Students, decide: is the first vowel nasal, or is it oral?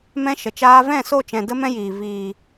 nasal